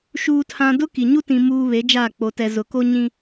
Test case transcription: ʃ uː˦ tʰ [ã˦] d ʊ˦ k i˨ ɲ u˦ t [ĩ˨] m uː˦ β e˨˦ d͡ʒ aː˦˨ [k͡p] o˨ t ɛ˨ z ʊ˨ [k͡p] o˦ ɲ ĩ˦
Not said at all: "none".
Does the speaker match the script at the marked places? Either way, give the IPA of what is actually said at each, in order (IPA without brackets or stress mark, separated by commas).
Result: ã˦, ĩ˦, k͡p, k